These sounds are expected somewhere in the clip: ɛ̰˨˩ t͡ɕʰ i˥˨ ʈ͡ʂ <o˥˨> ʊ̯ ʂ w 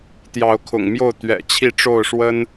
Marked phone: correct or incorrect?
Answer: correct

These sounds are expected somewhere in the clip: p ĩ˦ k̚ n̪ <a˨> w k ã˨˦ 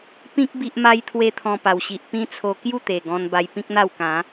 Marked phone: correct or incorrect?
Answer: incorrect: a˥˧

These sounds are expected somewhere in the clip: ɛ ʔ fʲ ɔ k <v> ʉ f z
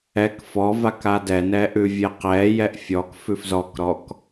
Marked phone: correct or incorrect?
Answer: incorrect: f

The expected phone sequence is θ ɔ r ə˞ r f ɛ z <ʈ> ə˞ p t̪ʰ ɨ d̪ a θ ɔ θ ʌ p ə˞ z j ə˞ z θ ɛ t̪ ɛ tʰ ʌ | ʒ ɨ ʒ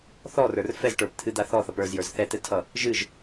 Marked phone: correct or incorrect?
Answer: correct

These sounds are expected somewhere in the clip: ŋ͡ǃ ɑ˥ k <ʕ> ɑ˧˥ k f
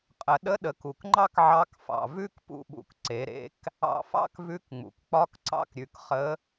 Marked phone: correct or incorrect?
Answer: correct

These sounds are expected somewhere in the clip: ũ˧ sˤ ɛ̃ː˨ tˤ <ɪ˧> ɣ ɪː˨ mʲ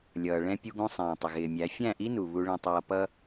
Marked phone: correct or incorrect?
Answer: incorrect: ɪ˨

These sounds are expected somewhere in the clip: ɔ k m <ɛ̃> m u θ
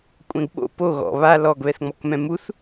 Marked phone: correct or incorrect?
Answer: correct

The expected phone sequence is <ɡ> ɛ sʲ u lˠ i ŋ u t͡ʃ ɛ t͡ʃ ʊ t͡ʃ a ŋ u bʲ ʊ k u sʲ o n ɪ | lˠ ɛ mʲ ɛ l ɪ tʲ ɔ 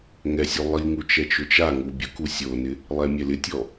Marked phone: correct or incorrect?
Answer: incorrect: ŋ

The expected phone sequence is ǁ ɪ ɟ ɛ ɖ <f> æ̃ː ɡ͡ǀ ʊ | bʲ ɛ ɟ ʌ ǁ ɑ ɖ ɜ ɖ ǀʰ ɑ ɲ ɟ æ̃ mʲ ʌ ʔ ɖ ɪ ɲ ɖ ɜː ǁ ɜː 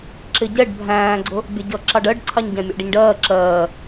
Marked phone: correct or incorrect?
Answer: incorrect: bʱ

